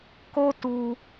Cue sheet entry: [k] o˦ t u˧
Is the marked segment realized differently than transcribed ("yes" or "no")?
no